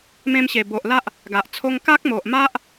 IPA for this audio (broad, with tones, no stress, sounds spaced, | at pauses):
m ẽ˧ m ɕ e˨˩ b o˨ ʔ l a˦ ʔ | ɡ a˨ ʔ t͡sʰ o˧ ŋ k a˦ k̚ m o˨ ʔ m a˦ ʔ